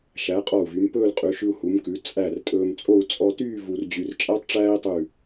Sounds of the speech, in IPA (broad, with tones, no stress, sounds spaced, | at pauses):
ʃ æ˩˧ qʼ ɔ˧˩ u̯ v y˩˧ m p ɵː˥˧ l qʼ ʉ˩˧ ʃ ʉ˧ u̯ h u˩˧ m k ʉ˩˧ t͡sʼ æ˧˩ r tʼ ɵː˧ m t͡sʼ o˥˧ u̯ t͡sʼ ɔ˧ t yː˥˧ v u˧ r d͡ʑ y˧ r t͡ʃʼ æ˥ tˤ ʈ͡ʂ æː˥ i̯ tˤ ʉ˧˩